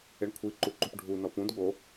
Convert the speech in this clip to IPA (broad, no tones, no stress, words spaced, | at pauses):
eɳkʷʰiǃuǃup ɖʱu nɔpũd ɠo